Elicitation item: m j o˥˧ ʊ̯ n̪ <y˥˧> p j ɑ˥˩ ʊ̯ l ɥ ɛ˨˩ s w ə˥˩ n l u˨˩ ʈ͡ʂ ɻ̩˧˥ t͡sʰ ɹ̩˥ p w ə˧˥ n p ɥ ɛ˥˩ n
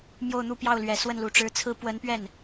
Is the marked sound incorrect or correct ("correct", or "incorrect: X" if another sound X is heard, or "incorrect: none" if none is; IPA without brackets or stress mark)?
incorrect: u˥˧